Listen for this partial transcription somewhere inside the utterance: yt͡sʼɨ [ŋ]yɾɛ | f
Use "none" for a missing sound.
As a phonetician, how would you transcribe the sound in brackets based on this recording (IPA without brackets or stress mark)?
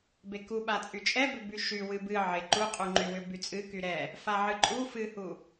k